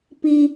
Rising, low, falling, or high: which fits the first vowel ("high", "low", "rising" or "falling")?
high